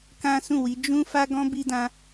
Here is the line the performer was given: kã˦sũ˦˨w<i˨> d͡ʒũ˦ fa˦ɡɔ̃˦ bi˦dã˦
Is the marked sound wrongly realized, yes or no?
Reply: yes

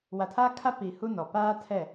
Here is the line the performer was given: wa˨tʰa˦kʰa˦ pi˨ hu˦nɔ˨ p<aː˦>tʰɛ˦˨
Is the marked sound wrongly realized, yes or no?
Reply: no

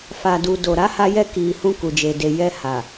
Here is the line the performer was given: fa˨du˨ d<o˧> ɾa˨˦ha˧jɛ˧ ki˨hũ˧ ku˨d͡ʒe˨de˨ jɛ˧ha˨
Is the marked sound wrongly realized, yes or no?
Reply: yes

